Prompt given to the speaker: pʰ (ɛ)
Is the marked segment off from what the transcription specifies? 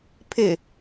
yes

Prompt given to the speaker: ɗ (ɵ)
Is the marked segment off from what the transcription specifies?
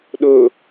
no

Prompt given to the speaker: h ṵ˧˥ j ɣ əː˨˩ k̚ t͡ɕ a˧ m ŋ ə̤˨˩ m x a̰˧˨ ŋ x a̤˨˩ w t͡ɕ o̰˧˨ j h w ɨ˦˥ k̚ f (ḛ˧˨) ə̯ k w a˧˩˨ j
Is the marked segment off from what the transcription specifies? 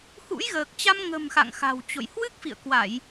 yes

